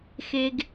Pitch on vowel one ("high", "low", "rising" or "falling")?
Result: low